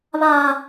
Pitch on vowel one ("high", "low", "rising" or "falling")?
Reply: high